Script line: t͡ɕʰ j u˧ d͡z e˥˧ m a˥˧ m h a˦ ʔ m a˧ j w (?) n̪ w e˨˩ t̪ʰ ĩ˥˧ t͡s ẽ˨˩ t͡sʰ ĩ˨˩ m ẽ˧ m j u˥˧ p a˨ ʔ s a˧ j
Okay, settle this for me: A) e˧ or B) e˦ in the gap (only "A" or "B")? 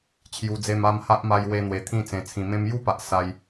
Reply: A